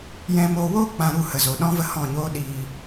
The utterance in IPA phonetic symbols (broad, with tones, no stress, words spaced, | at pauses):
jɛ̃˦moː˦ woː˦ k͡pã˧ ɾu˦˨hə˨zo˨ ɗɔ̃˦və˦hɔ̃˦˨ɲoː˦ ɗiː˧